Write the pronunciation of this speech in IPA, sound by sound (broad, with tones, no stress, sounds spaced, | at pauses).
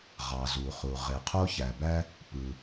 ʁ ɑ˩ z u˩ χ u˩ ʁ e˩ qʰ o˥ ç æ˩ b æ˥ | p ɯ˩